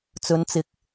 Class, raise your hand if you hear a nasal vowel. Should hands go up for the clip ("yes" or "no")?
no